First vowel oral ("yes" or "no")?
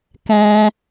no